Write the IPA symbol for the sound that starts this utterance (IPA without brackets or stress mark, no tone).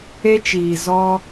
e